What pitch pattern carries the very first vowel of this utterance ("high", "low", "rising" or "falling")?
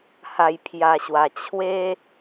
low